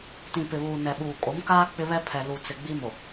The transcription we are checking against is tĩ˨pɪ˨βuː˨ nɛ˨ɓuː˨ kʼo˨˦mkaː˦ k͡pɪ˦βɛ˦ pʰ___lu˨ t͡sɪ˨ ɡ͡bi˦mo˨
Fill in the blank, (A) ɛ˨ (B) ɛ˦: A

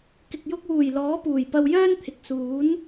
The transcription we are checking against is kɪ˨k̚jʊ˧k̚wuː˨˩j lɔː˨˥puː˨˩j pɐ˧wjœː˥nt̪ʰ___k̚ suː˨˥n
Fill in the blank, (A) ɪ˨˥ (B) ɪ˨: B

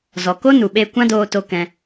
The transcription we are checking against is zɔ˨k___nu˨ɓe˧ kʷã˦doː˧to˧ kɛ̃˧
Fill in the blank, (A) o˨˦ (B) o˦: B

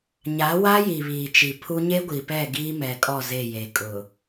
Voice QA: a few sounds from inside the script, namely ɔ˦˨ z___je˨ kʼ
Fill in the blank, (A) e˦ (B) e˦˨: B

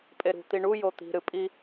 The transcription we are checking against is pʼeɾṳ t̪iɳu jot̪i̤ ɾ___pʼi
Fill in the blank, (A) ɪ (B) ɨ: B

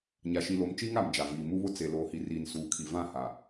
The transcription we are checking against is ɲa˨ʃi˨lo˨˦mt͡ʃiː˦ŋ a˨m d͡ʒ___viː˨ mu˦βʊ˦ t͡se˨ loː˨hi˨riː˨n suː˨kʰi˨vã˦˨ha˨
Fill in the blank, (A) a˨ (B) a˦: A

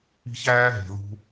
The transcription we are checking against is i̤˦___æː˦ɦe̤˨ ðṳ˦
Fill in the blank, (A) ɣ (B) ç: B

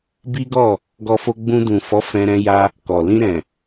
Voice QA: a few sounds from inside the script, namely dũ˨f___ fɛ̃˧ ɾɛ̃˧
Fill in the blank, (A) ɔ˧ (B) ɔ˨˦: B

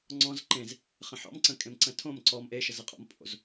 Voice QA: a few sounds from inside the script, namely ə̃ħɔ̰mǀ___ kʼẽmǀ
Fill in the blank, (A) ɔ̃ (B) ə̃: B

